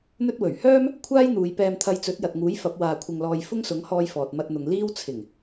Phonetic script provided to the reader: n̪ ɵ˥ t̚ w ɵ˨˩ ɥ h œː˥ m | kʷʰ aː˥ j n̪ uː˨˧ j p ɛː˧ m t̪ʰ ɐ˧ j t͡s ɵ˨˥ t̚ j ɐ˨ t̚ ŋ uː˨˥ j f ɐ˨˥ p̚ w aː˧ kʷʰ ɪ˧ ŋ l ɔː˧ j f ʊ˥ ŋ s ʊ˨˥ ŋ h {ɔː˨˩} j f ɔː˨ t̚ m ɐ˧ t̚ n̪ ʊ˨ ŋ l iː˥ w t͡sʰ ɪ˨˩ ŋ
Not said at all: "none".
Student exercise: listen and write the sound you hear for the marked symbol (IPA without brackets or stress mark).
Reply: ɔː˧